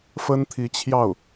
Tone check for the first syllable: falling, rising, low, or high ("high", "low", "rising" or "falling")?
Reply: high